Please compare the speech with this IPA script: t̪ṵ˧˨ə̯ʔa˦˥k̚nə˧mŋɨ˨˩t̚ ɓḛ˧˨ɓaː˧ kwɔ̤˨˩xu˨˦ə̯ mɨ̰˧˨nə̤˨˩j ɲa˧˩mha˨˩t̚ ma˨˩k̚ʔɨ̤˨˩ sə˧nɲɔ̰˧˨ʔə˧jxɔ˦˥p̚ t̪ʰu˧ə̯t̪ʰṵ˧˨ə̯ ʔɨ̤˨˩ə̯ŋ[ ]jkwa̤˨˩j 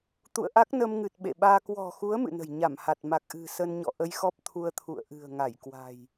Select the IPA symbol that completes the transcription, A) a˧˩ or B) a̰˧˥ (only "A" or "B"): A